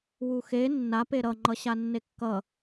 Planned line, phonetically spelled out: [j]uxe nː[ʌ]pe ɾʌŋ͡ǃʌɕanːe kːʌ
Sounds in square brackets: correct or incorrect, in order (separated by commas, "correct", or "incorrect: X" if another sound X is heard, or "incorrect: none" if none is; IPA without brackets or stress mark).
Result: incorrect: w, incorrect: a